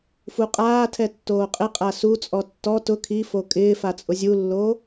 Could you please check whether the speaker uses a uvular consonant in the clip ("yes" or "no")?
yes